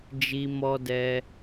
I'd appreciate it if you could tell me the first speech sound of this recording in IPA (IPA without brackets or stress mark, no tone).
d͡ʒ